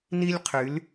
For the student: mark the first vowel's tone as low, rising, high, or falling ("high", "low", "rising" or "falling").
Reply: high